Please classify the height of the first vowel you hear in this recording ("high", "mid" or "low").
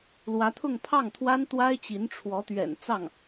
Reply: low